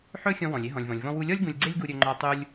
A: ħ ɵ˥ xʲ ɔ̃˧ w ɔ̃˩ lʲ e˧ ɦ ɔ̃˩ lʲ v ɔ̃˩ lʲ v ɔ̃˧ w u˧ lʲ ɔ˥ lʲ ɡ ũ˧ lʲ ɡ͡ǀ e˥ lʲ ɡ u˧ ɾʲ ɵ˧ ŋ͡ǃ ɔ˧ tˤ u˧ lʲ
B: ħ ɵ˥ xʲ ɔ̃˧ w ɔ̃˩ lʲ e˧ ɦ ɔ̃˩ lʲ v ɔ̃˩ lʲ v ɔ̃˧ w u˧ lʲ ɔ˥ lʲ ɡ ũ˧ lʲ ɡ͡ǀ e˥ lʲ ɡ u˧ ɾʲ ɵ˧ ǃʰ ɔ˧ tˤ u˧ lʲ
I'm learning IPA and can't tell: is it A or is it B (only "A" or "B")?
A